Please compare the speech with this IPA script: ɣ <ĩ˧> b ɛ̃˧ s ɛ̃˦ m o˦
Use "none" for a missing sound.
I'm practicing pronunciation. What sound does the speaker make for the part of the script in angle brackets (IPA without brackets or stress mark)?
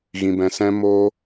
ĩ˧